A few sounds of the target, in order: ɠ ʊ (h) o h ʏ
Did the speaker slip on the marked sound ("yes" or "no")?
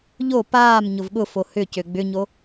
yes